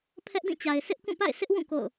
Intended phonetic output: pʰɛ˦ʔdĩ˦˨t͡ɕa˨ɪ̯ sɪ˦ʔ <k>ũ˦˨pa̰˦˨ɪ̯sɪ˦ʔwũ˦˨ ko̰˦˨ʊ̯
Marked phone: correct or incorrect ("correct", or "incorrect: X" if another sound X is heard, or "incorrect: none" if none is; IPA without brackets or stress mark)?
correct